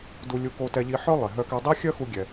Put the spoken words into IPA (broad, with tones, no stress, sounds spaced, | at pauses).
d u˧ lʲ u˧ k o˧ t ɛ˧ ʎ i˧ ħ œ˥ lˠ e˩ ɦ œ˧ k ɛ˧ dˤ i˥ xʲ œ˥ x u˧ ɡʲ ɛ˩